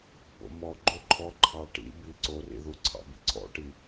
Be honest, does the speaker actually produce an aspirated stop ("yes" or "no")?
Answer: yes